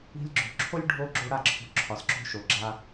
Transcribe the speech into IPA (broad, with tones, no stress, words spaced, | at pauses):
i̤˧lʲɡ͡ǁo̤˨ǁʰo˦lʲ ɖʱo˦ɡ͡ǁo˦ ɽa˦˨ǁʰo̤˧ ǁʰɒ˨sǁo̤˦ʃo˨ɡ͡ǁa˦